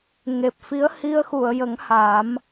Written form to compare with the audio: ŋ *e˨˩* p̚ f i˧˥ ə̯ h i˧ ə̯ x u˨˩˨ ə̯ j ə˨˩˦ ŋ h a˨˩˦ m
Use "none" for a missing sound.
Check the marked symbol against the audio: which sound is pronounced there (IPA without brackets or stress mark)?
e˨˩